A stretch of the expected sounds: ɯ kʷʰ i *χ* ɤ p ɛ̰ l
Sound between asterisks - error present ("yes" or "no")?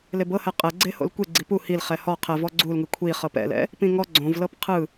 no